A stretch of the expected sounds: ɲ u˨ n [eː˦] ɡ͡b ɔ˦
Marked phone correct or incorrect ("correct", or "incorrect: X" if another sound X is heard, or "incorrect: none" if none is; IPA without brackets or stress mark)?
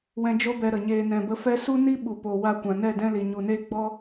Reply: incorrect: eː˧